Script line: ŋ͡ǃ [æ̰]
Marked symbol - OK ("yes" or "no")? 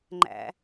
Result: yes